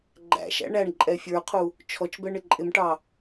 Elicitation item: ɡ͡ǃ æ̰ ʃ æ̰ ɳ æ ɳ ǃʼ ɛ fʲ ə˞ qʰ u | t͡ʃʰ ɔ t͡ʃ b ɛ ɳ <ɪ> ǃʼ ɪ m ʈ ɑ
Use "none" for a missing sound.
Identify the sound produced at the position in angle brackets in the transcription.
ɪ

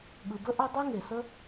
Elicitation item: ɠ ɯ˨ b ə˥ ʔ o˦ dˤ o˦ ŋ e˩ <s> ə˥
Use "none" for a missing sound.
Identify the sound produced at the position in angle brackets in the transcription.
s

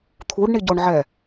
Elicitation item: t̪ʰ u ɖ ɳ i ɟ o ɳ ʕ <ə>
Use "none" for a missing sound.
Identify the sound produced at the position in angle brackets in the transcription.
ɛ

